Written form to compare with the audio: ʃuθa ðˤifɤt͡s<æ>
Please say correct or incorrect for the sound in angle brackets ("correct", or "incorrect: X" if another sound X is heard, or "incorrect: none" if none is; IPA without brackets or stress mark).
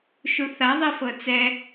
incorrect: ɛ